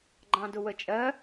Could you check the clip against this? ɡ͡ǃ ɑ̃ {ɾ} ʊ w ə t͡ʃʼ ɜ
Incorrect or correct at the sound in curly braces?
incorrect: d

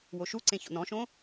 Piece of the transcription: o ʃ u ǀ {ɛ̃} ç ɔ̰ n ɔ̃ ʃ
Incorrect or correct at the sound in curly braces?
incorrect: ẽ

